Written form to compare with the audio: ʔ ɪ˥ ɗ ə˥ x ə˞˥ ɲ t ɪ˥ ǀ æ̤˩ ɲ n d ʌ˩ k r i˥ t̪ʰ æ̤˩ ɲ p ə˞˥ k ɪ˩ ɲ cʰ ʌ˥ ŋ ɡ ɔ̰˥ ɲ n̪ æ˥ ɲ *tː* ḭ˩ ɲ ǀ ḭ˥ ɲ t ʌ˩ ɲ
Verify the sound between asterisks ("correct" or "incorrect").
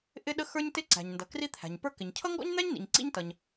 incorrect